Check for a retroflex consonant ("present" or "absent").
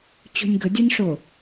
present